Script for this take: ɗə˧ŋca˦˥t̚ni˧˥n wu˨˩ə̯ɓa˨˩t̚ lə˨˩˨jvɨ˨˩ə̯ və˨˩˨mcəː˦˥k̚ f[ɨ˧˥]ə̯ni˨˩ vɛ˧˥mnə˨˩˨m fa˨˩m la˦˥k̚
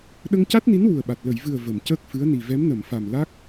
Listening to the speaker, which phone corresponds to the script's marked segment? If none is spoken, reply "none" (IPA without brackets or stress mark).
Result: ɨ˧˥